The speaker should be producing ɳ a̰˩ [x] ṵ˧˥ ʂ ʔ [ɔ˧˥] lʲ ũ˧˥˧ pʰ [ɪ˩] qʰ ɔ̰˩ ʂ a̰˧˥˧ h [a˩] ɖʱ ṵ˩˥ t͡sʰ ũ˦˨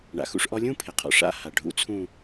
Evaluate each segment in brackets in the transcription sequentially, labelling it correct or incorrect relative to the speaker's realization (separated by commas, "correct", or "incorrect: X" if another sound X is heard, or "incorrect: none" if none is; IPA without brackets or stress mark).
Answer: correct, correct, correct, correct